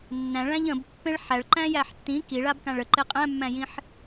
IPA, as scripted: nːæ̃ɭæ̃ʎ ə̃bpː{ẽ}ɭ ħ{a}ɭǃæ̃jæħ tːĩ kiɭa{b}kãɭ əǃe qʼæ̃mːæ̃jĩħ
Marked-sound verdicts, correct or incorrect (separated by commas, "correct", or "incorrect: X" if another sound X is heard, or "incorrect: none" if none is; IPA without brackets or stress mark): correct, incorrect: æ, correct